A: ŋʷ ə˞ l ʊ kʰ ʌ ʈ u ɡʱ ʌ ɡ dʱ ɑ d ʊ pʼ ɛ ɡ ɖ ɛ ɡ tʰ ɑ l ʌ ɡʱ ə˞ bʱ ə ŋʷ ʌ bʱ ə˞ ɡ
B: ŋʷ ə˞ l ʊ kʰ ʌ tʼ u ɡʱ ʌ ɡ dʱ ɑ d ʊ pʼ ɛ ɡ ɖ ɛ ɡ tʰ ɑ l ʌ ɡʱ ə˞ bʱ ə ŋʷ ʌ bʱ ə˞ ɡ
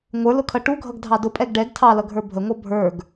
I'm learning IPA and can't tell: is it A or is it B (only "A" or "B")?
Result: A